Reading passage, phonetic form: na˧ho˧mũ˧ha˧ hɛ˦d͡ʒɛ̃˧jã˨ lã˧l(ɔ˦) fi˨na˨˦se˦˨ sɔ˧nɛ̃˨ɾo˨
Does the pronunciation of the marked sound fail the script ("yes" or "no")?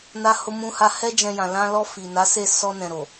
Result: yes